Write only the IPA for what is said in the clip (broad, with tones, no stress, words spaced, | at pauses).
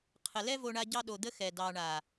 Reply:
qʰə˨lɛ˦ vo˧ɳa˧ ɟɑ˦ɗo˧d̪ə˦ xɛ˨dɑ˨ɳa˨